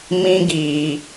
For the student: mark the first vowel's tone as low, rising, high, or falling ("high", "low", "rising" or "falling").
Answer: high